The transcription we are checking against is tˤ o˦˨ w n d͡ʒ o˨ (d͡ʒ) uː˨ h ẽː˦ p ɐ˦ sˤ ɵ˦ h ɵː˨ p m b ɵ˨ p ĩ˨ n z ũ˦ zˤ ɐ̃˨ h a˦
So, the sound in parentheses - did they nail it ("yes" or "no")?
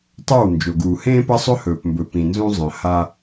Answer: no